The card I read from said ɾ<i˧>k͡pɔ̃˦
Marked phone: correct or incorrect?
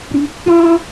correct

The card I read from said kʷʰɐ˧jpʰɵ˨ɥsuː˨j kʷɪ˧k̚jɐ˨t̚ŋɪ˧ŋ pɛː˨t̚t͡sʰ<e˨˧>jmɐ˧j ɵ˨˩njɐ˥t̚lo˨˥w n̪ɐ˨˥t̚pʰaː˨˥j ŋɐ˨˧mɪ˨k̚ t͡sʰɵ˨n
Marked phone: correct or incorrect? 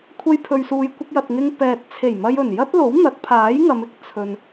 incorrect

